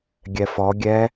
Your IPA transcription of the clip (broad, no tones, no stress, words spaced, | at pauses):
ɡʲɛfɔ ɡʲɛ